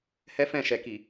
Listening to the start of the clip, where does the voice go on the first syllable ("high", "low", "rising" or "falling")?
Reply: high